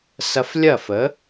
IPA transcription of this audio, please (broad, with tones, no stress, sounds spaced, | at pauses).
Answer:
s ɐ˧ f lʲ ɐ˥˩ f ə˩˥